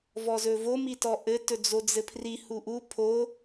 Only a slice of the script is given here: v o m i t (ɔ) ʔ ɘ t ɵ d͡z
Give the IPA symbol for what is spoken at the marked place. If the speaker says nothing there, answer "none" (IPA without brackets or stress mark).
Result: ɔ